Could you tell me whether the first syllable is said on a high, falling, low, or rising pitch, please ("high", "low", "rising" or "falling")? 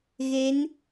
rising